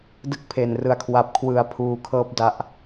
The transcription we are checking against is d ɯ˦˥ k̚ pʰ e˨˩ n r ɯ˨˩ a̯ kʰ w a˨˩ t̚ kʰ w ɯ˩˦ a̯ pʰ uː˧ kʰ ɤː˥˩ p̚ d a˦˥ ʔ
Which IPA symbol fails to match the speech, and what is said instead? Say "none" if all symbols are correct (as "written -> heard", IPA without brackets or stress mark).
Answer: t̚ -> p̚